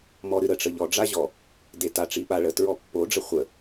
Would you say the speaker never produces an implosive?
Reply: no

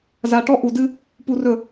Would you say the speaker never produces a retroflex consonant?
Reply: no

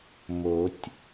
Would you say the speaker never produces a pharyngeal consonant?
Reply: yes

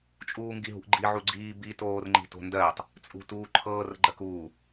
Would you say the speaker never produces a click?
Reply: no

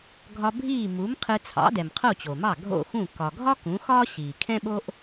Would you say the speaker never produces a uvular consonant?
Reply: no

